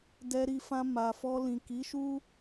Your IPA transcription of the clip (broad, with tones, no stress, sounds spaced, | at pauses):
d ɛ˧ ɾ i˧ f ã˧ m a˨ f ɔ˧ l ĩ˨ k i˨˦ ʃ u˦